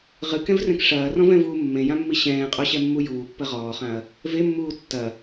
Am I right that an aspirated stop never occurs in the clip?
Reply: yes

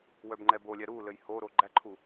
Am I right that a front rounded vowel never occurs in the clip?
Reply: no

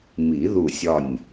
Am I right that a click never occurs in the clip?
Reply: yes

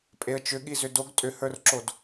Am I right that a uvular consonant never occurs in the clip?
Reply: yes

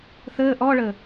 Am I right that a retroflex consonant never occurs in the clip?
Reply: no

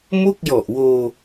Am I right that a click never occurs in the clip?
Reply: yes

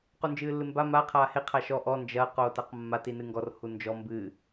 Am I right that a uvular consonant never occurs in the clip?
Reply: no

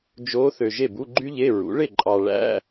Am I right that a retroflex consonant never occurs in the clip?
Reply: no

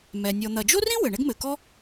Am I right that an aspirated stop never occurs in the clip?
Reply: yes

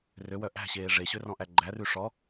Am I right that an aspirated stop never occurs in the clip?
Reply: yes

